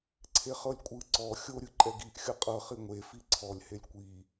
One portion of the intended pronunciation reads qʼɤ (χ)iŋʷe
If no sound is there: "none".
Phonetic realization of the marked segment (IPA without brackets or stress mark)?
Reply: χ